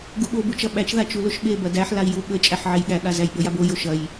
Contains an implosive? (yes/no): yes